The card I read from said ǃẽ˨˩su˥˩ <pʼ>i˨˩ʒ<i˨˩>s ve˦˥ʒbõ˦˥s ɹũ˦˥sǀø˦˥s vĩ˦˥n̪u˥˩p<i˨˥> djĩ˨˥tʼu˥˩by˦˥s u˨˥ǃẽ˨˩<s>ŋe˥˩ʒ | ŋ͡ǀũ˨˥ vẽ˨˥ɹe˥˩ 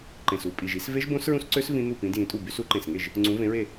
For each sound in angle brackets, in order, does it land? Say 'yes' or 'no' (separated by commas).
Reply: yes, no, no, yes